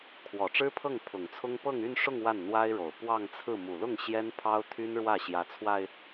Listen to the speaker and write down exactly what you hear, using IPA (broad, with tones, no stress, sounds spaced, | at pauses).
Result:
kʰ w ɔ˨˩ ʈ͡ʂ ɻ̩˥ pʰ ɤ˥˩ ŋ pʰ ʊ˨˩ ŋ t͡sʰ ʊ˥ ŋ p ɤ˥˧ ŋ y˥˧ n ʂ ʊ˥˧ ŋ w a˥˩ n n̪ w a˥ ɪ̯ ɻ o˨˩ ʊ̯ p w ɑ˥˧ ŋ t͡sʰ ɹ̩˥˩ m u˨˩ l ʊ˥˩ ŋ ɕ j ɛ˥ n pʰ ɑ˥ ʊ̯ t̪ʰ y˥ n ɻ w ä˥˩ ɕ j ä˧˥ t͡sʰ w a˧ ɪ̯